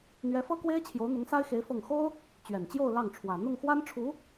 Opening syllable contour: rising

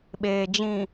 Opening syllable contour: low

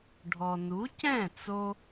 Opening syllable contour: low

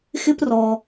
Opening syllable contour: high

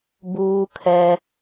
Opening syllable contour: high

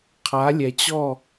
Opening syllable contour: rising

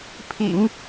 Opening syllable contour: low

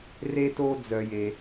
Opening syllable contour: high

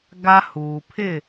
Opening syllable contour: high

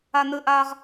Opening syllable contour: high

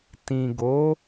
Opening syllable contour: low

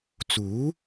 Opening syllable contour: rising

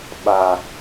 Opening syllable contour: low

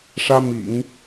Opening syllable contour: high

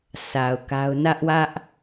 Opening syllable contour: low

